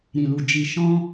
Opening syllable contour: low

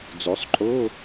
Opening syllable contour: rising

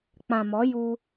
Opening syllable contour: low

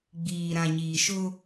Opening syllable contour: low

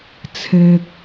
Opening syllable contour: low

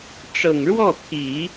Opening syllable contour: low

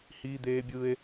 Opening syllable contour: high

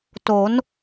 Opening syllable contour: rising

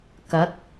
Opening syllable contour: rising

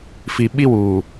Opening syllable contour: low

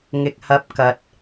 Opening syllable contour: low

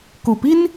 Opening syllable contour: low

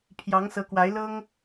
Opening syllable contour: rising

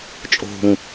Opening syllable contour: low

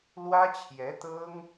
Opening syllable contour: high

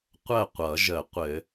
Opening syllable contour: falling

